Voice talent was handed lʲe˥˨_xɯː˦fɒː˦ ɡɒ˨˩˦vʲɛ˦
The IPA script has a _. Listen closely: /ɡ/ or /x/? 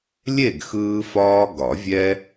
ɡ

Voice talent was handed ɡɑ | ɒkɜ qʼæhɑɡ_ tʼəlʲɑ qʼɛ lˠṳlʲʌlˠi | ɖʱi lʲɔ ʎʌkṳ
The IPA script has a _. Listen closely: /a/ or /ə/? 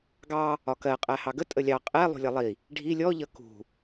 ə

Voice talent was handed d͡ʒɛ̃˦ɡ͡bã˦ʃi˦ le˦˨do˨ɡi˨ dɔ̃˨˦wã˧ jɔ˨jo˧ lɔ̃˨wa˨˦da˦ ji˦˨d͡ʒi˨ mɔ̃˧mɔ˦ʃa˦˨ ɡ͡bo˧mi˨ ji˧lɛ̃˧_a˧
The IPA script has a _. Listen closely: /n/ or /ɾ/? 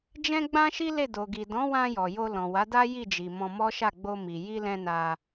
n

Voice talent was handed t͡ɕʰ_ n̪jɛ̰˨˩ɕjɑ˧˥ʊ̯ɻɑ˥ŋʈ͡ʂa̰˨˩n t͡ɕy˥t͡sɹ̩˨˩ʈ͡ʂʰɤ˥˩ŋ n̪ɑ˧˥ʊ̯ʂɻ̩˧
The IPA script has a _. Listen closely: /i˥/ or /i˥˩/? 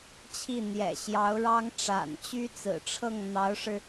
i˥˩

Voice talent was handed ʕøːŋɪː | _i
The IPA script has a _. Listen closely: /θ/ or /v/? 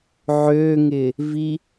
v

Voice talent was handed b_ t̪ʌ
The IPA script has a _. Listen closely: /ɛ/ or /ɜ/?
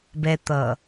ɛ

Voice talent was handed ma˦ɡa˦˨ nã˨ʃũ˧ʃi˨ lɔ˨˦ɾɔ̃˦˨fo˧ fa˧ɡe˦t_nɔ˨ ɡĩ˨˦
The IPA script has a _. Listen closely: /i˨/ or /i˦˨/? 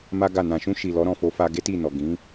i˦˨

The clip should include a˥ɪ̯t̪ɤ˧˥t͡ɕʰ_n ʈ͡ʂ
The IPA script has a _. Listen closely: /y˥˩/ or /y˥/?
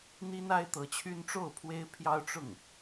y˥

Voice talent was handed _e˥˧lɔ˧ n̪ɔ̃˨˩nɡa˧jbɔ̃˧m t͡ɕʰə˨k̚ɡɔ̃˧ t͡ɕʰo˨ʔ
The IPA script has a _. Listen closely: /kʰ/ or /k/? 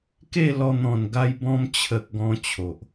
k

